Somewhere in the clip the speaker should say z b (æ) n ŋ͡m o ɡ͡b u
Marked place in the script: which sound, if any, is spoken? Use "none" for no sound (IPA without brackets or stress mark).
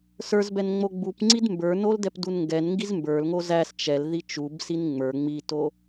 ɛ